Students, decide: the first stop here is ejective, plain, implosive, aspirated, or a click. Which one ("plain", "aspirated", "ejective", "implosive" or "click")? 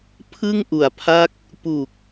aspirated